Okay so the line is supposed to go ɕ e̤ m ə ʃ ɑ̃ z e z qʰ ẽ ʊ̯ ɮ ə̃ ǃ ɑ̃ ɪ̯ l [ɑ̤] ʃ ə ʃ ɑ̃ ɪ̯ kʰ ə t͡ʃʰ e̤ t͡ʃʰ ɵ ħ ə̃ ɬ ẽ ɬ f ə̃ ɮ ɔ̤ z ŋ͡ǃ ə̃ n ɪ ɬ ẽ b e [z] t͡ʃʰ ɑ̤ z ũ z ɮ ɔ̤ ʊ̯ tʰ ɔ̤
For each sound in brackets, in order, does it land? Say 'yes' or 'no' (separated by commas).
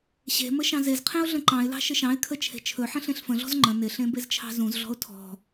yes, yes